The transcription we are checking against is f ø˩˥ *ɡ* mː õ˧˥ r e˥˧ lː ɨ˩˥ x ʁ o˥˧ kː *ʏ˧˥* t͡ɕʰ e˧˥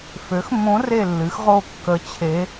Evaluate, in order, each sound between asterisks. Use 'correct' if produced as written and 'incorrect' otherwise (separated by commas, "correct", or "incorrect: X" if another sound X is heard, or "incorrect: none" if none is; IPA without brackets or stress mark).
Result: incorrect: x, incorrect: ə˧˥